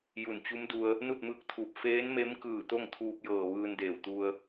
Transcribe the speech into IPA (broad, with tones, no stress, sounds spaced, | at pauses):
j u˧˩ n t͡ɕ u˧˥ m d u˧ ə̯ | n u˥˨ t̚ m ɯː˧˥ k̚ t̪ʰ uː˧˩ p̚ f eː˧˥ n m e˧˥ m k ɯː˧˩ t̪ o˥˨ ŋ t̪ʰ uː˧ p̚ j ɤː˧˩ ʋ ɯː˧ n d eː˧˩ w t̪ u˧ ə̯